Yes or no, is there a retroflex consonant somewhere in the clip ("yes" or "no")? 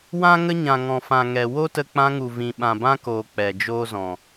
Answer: no